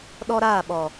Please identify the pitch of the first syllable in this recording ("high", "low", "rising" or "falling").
high